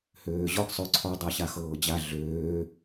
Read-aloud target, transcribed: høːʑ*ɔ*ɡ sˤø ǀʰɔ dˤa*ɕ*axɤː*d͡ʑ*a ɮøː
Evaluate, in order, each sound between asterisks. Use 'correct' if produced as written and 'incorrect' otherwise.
correct, correct, correct

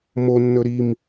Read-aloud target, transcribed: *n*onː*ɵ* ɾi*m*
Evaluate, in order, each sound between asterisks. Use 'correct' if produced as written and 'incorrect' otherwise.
incorrect: m, correct, correct

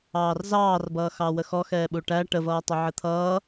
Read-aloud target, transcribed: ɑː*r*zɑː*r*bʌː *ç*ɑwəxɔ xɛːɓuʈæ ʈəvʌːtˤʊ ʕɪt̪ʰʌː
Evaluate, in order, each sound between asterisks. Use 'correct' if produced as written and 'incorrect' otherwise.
correct, correct, incorrect: x

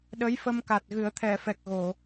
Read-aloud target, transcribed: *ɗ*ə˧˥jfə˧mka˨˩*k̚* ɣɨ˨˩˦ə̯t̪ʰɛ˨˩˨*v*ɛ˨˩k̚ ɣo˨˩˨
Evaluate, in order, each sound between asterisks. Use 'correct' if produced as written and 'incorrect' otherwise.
correct, incorrect: t̚, incorrect: f

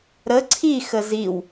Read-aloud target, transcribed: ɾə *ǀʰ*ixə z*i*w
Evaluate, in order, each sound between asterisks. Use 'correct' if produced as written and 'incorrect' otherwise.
correct, correct

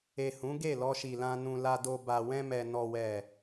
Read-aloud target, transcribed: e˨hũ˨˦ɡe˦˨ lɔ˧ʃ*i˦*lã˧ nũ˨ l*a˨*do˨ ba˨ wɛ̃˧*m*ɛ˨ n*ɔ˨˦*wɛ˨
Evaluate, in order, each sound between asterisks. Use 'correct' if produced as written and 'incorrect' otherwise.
incorrect: i˨, correct, correct, incorrect: ɔ˨

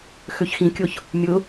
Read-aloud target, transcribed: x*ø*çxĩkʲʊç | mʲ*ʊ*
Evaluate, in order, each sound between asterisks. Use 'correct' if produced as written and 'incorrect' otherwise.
correct, correct

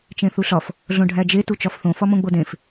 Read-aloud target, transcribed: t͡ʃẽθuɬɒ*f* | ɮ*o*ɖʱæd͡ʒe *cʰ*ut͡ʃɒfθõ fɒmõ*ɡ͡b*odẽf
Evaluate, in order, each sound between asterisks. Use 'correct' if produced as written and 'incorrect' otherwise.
correct, incorrect: õ, incorrect: t, correct

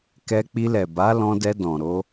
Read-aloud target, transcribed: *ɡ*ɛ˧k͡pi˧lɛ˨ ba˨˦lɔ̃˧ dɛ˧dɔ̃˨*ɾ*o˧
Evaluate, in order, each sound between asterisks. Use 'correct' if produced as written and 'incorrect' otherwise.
incorrect: k, correct

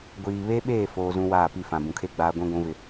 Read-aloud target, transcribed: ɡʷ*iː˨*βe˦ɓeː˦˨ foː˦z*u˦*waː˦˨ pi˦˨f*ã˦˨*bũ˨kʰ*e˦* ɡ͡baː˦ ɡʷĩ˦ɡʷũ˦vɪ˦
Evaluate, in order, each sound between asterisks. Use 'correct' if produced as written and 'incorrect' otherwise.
correct, incorrect: ũ˦, incorrect: ã˨, correct

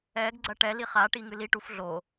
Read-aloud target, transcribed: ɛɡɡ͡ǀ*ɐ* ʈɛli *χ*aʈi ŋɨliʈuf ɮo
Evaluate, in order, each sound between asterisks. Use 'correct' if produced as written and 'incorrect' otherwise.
correct, correct

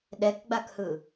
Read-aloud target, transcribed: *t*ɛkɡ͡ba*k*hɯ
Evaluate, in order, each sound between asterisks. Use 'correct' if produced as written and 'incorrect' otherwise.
incorrect: ɗ, correct

